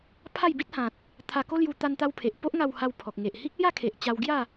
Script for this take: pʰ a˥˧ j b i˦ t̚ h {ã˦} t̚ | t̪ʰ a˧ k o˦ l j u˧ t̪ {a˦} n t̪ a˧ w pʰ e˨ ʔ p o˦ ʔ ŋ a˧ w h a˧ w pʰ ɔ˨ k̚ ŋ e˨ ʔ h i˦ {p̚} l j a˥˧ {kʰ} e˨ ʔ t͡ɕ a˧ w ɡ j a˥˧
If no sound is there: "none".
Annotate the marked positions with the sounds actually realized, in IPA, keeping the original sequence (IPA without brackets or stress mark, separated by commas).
ã˨, a˧, k̚, kʰ